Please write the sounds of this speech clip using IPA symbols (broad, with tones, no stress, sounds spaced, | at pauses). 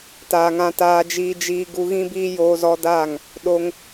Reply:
t aː˨ ŋ ã˧ t aː˧ d͡ʒ iː˧ d͡ʒ iː˧ ɡ u˧ ɣ ĩ˦ b iː˦ j oː˧ z ɔ˧ d aː˦˨ ŋ | ɗ o˧ ŋ